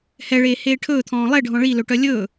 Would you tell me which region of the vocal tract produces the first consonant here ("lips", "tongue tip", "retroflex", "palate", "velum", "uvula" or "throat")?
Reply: throat